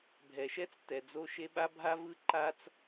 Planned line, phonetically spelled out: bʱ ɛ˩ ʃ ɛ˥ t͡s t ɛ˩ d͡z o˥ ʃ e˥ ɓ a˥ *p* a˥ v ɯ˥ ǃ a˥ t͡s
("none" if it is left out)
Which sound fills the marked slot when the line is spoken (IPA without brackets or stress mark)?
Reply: bʱ